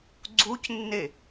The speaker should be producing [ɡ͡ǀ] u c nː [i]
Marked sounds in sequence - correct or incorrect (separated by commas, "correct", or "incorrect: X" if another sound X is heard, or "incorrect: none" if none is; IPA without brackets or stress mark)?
correct, incorrect: e